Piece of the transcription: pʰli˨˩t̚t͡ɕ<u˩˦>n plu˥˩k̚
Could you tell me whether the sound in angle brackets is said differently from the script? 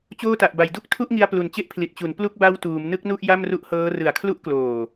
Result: no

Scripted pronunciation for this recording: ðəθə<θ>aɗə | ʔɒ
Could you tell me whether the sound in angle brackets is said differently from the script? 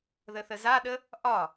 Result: yes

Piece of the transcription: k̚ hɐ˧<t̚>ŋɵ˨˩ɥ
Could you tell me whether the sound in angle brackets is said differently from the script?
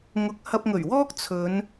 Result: yes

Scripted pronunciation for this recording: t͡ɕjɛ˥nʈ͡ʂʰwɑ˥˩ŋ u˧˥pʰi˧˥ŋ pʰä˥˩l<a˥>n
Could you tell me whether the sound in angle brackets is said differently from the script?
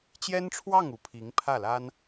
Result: no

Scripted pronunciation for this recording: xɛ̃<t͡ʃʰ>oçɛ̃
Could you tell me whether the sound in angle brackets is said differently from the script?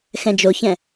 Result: yes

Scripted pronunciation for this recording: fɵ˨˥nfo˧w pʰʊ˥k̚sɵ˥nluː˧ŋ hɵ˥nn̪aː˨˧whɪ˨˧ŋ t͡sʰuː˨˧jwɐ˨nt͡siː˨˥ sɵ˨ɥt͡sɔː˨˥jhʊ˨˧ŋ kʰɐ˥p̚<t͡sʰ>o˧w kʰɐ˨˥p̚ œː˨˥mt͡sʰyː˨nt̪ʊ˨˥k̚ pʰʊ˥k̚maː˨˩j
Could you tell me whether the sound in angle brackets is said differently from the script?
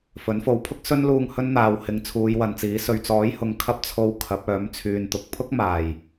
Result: no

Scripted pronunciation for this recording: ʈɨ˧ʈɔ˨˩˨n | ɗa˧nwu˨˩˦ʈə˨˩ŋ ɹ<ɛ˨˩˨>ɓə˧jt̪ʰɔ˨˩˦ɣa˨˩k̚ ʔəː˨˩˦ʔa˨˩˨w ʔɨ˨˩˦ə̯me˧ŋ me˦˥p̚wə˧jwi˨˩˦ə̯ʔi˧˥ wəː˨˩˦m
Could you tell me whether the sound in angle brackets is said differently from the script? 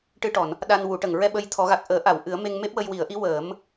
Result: yes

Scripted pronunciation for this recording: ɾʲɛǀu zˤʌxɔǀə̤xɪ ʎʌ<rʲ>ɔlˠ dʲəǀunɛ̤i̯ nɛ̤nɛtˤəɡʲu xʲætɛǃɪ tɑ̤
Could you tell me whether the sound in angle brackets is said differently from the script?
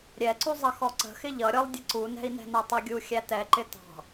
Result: yes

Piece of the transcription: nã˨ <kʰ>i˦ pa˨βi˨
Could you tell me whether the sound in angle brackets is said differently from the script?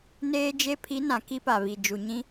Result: yes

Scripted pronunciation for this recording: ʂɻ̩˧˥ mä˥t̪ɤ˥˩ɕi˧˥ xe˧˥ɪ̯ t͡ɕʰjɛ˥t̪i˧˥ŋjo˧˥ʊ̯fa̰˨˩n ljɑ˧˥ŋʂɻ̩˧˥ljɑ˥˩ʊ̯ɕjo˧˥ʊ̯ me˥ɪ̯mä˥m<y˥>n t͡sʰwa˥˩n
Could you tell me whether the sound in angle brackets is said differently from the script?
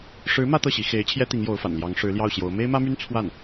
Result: no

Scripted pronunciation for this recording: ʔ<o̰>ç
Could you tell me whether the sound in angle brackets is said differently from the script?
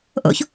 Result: no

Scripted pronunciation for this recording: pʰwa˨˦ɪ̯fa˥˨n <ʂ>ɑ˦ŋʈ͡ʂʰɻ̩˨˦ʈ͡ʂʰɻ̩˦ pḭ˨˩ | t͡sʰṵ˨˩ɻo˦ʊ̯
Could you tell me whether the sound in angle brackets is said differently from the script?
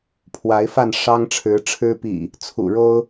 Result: no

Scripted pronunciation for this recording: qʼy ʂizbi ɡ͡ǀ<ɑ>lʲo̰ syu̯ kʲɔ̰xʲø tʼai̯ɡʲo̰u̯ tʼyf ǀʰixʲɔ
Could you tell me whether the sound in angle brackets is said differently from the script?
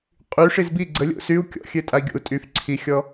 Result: yes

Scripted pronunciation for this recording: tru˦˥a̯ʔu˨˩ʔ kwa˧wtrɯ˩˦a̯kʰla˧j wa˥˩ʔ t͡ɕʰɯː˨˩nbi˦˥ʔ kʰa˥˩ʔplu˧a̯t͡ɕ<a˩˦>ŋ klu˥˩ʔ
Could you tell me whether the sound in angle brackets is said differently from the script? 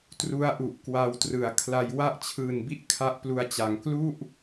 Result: no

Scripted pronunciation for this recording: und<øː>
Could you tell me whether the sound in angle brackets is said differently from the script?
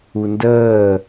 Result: yes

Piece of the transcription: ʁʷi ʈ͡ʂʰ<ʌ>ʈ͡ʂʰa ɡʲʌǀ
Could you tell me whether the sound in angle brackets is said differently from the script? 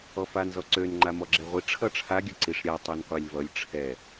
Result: no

